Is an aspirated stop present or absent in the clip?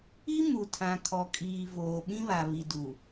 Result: present